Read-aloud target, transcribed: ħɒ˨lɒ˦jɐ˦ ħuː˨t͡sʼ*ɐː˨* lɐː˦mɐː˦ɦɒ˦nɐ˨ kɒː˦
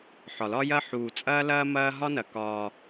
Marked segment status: incorrect: ɐː˦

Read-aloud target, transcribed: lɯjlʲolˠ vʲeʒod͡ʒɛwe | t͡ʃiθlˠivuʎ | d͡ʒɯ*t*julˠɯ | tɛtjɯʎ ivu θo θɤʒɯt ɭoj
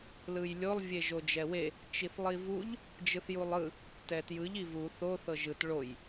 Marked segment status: incorrect: θ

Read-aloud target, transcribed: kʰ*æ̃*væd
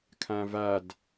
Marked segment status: correct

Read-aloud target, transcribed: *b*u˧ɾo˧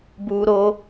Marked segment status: correct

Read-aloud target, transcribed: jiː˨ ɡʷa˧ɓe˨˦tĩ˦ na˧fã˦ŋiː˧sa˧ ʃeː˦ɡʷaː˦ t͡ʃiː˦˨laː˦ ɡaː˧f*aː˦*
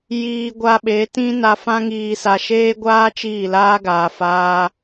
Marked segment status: correct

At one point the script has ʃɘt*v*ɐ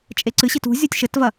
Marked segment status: correct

